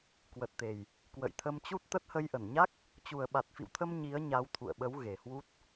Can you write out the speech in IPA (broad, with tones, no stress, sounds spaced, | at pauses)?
k w ə˨˩ t̚ t̪ e˨˩ j | k w ə̰˧˨ j t̪ʰ ə˧ m t͡ɕ u˦˥ t̚ t̪ ə˦˥ t̚ h ə˧ j ʔ ə˧˩ n ɲ a˦˥ k̚ | t͡ɕ u˨˩ ə̯ ɓ a˨˩ t̚ f ḭ˧˨ w t̪ʰ ə˧ m ɲ i˨˦ ə̯ ɲ a˨˦ w t̪ʰ ṵ˧˨ ə̯ ɓ ə˨˦ w ɣ e˨˩ h w u˦˥ t̚